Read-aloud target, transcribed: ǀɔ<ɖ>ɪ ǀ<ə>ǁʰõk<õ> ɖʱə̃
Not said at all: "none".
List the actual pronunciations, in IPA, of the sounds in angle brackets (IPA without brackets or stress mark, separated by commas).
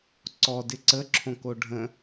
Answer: d, ə, o